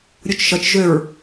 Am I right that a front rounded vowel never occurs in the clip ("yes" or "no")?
no